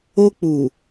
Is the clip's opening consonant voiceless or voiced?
voiceless